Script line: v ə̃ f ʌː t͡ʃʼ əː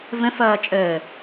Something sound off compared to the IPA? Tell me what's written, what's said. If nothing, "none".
none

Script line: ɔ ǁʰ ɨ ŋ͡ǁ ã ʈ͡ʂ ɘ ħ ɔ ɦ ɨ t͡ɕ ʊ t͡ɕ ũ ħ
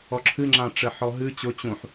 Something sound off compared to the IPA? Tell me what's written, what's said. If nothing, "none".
none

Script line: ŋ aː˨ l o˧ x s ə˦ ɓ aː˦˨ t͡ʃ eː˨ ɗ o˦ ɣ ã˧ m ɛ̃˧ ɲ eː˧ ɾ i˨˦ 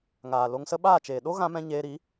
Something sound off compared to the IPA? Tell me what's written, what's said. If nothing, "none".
x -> ŋ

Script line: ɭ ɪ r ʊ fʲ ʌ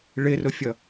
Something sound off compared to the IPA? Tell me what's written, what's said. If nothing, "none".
none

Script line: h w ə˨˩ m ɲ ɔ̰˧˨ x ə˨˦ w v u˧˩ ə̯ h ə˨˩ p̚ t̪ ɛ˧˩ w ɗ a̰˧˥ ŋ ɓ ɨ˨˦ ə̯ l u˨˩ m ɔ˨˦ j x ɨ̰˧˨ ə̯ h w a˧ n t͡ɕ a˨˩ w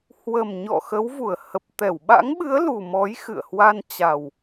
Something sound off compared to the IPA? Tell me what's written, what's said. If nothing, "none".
ɗ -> ɓ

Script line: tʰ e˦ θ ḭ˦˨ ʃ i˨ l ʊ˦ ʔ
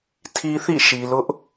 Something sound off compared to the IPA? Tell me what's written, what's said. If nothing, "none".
e˦ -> i˦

